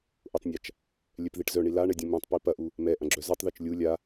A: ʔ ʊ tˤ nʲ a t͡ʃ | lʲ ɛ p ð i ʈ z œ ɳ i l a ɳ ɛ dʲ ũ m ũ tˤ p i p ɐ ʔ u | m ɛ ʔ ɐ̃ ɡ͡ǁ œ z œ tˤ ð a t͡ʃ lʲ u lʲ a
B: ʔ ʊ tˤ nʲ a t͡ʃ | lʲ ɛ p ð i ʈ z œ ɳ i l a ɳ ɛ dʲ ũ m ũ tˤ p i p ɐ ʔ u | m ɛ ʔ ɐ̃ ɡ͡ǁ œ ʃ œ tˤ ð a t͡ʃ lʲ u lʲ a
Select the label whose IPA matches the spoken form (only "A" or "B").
A